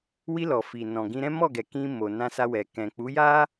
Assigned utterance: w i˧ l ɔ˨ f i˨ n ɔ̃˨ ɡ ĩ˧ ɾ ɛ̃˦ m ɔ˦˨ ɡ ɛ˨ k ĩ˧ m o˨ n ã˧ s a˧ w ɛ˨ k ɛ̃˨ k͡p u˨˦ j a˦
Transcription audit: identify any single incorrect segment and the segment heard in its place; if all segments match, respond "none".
none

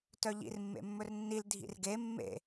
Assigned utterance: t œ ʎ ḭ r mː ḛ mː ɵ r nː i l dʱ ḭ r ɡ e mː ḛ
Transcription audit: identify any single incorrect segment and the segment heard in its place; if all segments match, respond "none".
none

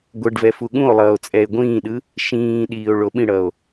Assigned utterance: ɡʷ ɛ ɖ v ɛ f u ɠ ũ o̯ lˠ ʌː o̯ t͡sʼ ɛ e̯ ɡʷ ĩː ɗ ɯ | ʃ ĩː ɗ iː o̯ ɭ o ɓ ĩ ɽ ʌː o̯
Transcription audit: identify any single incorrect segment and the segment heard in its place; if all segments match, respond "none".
none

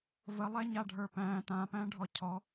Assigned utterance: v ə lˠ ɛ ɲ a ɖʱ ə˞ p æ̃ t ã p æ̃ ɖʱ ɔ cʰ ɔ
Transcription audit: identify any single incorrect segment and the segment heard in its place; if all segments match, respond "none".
none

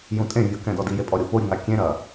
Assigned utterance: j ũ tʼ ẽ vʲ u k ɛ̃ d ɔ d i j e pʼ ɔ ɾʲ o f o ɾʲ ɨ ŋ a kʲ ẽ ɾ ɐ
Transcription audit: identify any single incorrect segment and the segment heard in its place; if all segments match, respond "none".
none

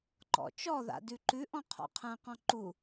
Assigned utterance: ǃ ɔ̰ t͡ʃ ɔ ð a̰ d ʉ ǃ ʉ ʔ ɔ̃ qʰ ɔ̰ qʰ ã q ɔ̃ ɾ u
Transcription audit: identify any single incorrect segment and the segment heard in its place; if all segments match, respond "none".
ɾ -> ǃ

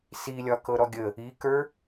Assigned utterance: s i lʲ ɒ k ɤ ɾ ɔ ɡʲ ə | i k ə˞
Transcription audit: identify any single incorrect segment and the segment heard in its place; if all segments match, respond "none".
none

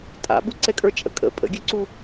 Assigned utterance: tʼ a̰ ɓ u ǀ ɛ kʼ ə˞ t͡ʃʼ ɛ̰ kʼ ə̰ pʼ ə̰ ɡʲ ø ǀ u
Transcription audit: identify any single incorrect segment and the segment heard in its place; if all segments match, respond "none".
ɛ̰ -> ə̰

